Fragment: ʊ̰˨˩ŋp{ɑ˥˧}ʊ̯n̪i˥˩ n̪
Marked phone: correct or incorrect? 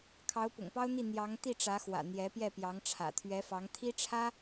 incorrect